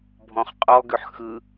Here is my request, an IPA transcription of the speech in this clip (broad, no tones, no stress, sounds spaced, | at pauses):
bʱ ɔ̃ χ qʼ ɔ ɡ ʏ ħ x ɯ